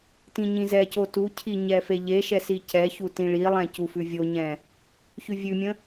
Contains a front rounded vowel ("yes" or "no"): no